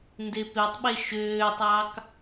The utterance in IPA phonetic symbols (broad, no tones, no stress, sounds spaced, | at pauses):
n d e p e tˤ ɓ e ʃ øː tˤ ɑ k